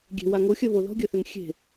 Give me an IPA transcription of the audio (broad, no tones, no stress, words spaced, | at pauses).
ɡʲe̤ waŋoxʲɜ βoðɔ̤ɡʲɜθøŋ xʲe̤